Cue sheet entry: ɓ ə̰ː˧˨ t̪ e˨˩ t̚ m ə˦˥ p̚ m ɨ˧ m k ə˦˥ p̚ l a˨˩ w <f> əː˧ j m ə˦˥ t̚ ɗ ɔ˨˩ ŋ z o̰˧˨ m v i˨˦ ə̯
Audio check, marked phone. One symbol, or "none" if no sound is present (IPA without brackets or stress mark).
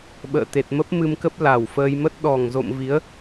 f